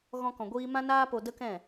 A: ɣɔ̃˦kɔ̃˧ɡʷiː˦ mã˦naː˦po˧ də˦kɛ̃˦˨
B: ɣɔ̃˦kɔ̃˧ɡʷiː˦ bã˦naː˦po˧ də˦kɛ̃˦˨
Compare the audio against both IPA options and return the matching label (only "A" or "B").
A